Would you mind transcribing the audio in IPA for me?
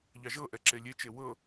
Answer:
ʎ ɑ ʒ ɤ ʔ ɛ ǁ e lʲ e t͡ʃ e w ɤ

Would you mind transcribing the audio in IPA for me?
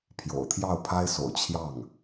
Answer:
pʰ j o̰˨˩ ʊ̯ t̪ʰ j ɑ˥˩ ʊ̯ pʰ a˥ ɪ̯ s o̰˨˩ ʊ̯ t͡ɕʰ j ɑ˥˩ ŋ

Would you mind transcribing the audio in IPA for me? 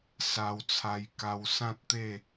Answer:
s a˧ w t͡sʰ a˧ j k a˧ w s ã˦ t̚ t̪ e˥˧

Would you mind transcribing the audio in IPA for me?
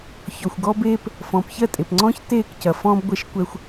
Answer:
ç ɔ˨ xʷ ɡ ɔ˦ b eː˦ p | f ɔ̃ː˨ p ç ɜ˦˨ tʼ e˨ p ŋ͡ǀ ɔ̃ː˦ ç t eː˦˨ k c ɐ˨ f ɔ̃ː˦ b ɡʷ ɛ˦ ʃ kʷ ɛ˦ xʷ

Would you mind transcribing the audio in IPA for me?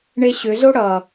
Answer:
ɳ e ɕ ʏ z o ɽ ʌ

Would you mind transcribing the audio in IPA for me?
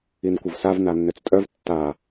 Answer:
i n kʷ ɐ v s a v n a nː ø t͡s tʼ œ v tː a

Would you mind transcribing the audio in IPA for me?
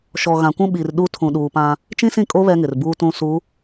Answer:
ʃ ɔ˨ ɣ ã˨ kʷ ũ˦ ɓ i˨ r ɗ u˦ tʰ ũ˨ ɗ uː˨ p ã˦ | t͡ʃ ĩ˦ s ĩ˦˨ kʼ o˦ β ɛ˦ ŋ ɪ˨ r b uː˦ t ũ˦ s u˨˦

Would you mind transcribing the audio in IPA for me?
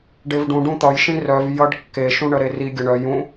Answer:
ɖ e v ɖ ũ ɖ ũ t̪ ʌ j ʃ ĩ r œ v j ʌ ɖ kː e ʃ ũ ɳ ə ɾ e r i ɡʲ ə ɳ œ j ũ

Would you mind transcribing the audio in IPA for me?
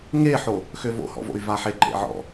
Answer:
ŋ e ħ o | x ø v o̰ h ɔ̰ v o̰ y̯ v a ħ e ǃ ḛ ʕ ɔ̰

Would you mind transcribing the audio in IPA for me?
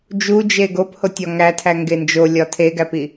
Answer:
d͡ʒ u d͡ʒ e ɡ o p h o tʲ ɒ ŋ æ tʰ æ ŋ ɡ e n d͡ʒ o lʲ ɒ tʰ e ɡ æ p i

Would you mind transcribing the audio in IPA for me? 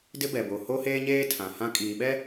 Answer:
d ɪ˦ b ɛ˨ b o˨ h o˦ h eː˦ ɲ eː˦ tʰ ã˨ h ã˦ kʼ iː˨ ɓ ɛ˦

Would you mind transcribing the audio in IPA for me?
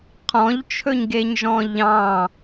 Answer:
qʰ ɔ̃ ʎ t͡ʃʰ ɵ ɲ ɡ e ɲ ʒ ɔ̃ ʎ ɑ̃

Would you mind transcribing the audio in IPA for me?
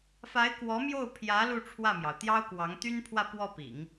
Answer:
f a˧˥ ɪ̯ k w ɔ˧˥ m j o˥˩ ʊ̯ pʰ j ä˧˥ l u˥˧ ʈ͡ʂʰ w ä˥˩ m j ɑ˩ ʊ̯ t̪ j ɑ˥ ʊ̯ k w ɑ˧˥ ŋ t̪ y˥ n pʰ w ä˥˧ p w ɔ˥˩ p ḭ˨˩˦ ŋ

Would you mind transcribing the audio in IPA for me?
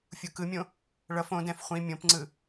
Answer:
fʲ u k ɯ mʲ õ | ɭ ʌ f õ d ɛ̃ f χʷ ĩ mʲ õ p ŋ͡ǀ ɯ

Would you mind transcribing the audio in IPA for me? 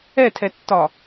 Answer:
ɛ tʰ ɛ tː ɒ

